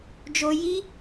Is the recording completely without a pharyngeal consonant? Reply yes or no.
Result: yes